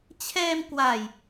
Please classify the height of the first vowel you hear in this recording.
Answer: mid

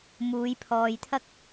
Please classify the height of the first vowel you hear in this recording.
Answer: high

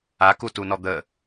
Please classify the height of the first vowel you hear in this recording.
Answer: low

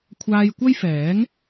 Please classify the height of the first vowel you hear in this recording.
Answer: low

